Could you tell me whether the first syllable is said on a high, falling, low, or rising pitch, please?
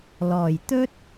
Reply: low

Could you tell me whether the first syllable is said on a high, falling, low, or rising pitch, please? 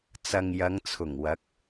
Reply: low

